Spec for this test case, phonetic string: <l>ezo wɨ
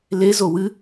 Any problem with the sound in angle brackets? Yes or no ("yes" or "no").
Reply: no